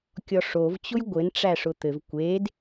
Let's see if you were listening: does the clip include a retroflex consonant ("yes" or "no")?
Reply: yes